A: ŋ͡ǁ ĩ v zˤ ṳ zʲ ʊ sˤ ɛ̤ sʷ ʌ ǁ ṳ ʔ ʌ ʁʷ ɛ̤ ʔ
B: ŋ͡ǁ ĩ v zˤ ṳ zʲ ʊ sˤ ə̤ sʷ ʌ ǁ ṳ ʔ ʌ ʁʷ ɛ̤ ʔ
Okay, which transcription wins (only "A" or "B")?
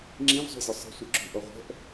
B